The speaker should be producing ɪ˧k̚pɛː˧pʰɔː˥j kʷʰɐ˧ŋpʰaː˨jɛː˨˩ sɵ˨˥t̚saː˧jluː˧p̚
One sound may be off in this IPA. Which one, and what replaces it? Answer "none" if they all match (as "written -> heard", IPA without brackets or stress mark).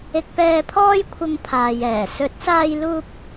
none